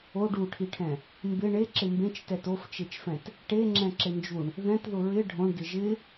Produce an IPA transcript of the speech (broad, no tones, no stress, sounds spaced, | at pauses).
o ɖ u ʈʰ i ʈʰ ɛ̃ | m b ɪ ɳ e ǁ ɪ m b ẽ t͡ʃ t ɛ t o f t͡ʃ e t͡ʃ f ɛ̃ t | ʈ e ŋ͡ǁ ɛ̃ ǁ ɪ n d͡ʒ u ɳ | ð ɛ̃ t ð ʊ ɹ ɪ ɖʱ õ ɳ d ɪ ʒ ɪ